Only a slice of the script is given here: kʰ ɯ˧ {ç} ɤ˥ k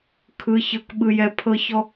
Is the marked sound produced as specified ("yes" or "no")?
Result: yes